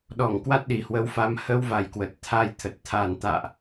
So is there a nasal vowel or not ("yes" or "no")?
no